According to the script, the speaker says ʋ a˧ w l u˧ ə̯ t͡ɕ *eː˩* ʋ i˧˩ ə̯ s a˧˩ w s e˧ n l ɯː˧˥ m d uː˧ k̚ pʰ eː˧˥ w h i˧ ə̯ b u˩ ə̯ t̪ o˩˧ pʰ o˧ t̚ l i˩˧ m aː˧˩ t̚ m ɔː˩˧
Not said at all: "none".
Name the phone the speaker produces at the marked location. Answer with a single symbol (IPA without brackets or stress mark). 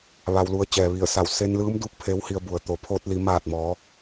ɛː˩